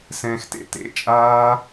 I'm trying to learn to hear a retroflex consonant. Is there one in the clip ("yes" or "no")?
no